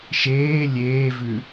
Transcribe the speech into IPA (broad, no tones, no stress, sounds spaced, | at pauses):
ʃ eː lʲ eː v ʉ